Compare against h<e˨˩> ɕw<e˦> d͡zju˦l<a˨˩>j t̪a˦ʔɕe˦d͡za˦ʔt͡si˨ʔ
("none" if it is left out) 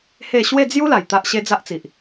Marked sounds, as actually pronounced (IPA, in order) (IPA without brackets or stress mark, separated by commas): e˥˧, e˥˧, a˨˩